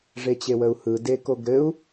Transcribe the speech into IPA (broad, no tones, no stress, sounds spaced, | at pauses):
ʐ e t͡ɕ e w ə u̯ h ɯ d e k o ɡ ɾ ɘ u̯